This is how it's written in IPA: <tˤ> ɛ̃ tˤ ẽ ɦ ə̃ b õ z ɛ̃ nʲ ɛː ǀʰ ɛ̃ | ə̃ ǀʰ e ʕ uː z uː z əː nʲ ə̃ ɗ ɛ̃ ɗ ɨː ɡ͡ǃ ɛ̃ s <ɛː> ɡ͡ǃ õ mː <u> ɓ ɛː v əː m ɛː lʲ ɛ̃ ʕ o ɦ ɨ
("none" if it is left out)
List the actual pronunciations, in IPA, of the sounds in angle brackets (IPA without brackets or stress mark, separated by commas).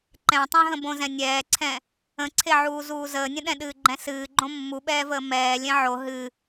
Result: ǃ, ɨː, u